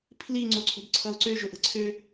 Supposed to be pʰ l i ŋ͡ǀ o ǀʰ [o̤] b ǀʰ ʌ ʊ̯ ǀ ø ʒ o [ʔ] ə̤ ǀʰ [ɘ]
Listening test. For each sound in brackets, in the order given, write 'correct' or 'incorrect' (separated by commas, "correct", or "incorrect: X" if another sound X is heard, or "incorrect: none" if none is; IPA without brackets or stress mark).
correct, correct, incorrect: ø